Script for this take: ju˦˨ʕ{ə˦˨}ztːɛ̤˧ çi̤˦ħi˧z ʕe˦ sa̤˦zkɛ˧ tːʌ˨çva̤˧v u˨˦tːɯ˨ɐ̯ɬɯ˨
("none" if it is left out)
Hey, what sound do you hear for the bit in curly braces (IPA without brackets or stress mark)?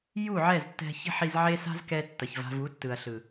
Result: ɛ˦˨